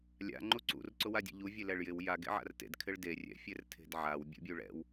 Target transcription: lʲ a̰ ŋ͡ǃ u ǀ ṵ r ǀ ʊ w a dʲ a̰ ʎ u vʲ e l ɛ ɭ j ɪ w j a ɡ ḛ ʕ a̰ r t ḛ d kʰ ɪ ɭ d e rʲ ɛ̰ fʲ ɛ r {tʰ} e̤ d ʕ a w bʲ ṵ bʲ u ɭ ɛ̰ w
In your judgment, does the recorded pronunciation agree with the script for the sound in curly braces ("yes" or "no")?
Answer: yes